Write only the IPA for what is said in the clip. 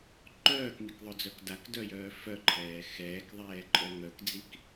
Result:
ǃœːkmikðˤœd͡zœk dakdœjœː fœǃʰɛː xɛːkðˤɛːǃʼœ ŋœkd͡zik

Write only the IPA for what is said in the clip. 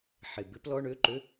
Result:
ħe˧˩bɪ˦˥p lɔ˧˥˧ɳø˧˥˧ǃø˧˥˧

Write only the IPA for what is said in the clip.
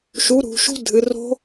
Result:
ʃu˨˥ɾṳ˩˧ʃṳ˦˥ dʱɨ˩˧ro̤˦˥

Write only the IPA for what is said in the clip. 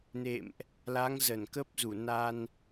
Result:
nḛ˧˨mʔ | la˨˦ŋzə˧˩nkə˦˥p̚ zu˧˩ na˧n

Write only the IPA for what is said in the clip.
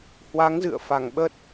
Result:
hwa˨˦ŋzɨ̰˧˨ə̯fa˧˩ŋɓə˦˥t̚

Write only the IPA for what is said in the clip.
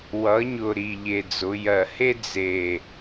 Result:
wʌ˩˧ɲʊ˨˩ ɾi˨˩ʎe˨˩d͡zʊ˩˧ jɜ˨˩he˥ d͡ze˨˩

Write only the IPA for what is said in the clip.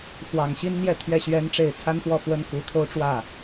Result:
fwɑ˨˩ŋɕi˥nn̪jɛ˥˧ t̪ʰɥɛ˥˩ɕɥɛ˥nʈ͡ʂe˥˩ɪ̯ t͡sʰa˥nfwɔ˥˩fwə˥n ku˧˥t̪ʰo˥ʊ̯ʈ͡ʂwä˥˩

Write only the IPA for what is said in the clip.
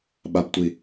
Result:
ɓabtʷi

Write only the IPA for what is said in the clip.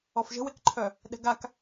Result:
ɔfʒə̤wekǃʰœ | ɗɛ̤ɡak

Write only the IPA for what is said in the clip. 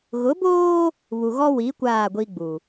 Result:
ɣʊ˨˦boː˦ | βu˨ɣɔ˦ wi˨˦ kʷaː˦˨ɡʷi˦ɡ͡bu˨

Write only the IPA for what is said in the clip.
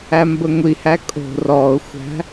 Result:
æmbəŋʷihæ kʼo̤ rɔʊ̯xʷæ̤

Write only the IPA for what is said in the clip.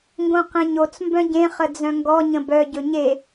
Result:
ŋɡõqẽɲot͡s mbœ̃ɟẽ χəd͡zœ̃ŋɡɔ ɲə̃bœ ɟɵɲe

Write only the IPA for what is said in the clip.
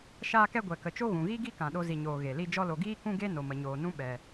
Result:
ʃaː˦kɛ˦ ɡʷɛ˨kə˨t͡ʃo˦ ɣũ˨ɣi˦ɡi˦ kã˨ɗo˧zi˨ɲoː˨ ɣe˨li˦ d͡ʒɔ˧lo˨ɡiː˦ kũ˦ɡe˦ no˨mə˨ɲoː˨nũ˦ ɓɛ˨

